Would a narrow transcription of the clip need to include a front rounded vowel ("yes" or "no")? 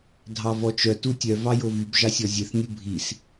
yes